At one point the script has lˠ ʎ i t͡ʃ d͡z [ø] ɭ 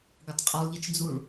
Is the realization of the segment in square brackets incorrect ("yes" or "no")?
yes